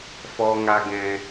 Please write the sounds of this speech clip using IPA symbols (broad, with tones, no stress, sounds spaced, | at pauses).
f ɔ˨ ŋ a˧ ɡ ɛ̃˧